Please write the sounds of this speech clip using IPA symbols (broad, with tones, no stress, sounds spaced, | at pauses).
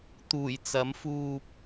t̪ uː˨˩ j t͡s ɐ˨˥ m f uː˧ p̚